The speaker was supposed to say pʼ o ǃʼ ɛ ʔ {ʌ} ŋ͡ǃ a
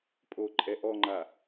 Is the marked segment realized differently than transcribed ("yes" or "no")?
yes